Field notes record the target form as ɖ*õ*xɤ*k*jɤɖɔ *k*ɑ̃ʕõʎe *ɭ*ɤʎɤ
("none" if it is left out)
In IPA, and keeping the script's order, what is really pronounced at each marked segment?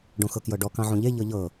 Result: õ, k, k, ʎ

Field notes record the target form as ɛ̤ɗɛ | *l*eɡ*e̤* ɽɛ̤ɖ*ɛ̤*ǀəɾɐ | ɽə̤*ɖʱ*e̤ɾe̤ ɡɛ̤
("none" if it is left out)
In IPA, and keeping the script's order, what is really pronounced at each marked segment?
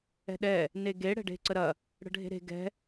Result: n, e, e̤, ɖʱ

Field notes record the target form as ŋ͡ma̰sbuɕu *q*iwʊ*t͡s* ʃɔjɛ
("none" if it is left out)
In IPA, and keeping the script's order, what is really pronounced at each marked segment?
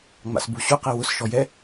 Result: q, s

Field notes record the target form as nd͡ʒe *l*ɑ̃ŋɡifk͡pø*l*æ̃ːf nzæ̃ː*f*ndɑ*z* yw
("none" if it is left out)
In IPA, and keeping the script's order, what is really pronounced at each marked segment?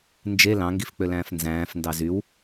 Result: l, l, f, z

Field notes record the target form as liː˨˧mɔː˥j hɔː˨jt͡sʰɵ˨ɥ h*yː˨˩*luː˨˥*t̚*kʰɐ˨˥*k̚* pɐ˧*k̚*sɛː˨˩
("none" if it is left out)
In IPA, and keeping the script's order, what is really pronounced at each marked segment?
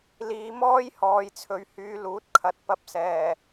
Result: yː˨˧, t̚, t̚, p̚

